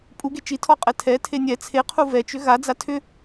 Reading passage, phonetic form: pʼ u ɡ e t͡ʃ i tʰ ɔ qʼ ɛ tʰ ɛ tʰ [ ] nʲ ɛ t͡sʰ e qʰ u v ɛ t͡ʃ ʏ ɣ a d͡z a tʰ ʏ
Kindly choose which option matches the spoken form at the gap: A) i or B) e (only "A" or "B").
B